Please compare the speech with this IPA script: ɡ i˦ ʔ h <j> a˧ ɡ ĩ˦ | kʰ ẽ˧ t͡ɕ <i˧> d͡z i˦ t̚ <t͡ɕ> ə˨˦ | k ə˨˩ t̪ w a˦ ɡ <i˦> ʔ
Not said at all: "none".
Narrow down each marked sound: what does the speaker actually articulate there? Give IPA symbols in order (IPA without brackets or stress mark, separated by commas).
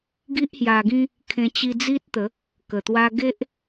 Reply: j, i˧, t̪, e˦